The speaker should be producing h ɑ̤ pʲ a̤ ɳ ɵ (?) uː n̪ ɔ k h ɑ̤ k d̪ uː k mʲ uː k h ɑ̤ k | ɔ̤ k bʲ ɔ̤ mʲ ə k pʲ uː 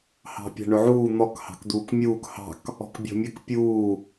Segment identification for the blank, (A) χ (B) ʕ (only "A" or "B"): B